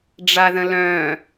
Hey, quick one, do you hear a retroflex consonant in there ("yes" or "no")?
yes